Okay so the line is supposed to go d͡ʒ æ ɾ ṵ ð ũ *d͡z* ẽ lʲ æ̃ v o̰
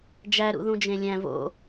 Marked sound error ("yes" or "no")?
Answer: yes